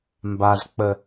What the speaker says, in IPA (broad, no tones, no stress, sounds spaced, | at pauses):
m b a z k͡p ə